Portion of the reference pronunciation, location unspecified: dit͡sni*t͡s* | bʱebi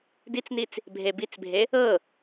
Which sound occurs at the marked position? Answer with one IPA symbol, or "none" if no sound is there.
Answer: t͡s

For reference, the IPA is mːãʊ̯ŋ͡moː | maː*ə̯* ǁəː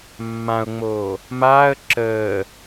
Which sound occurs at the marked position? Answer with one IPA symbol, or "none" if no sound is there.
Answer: ə̯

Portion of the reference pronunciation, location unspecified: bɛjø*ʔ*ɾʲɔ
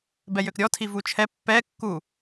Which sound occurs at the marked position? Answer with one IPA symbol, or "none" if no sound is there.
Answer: k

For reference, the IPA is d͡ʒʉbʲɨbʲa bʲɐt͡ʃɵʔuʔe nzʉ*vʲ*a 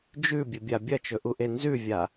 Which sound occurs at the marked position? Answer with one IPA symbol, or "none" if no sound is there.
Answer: vʲ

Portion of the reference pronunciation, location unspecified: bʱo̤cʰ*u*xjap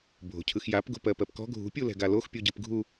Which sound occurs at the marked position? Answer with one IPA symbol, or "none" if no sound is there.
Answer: ɯ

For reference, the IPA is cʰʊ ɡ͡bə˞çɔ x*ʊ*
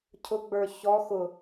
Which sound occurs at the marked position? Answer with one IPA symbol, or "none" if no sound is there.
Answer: ʊ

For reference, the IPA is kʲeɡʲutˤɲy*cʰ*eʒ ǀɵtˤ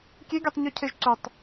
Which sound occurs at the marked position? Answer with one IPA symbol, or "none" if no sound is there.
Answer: cʰ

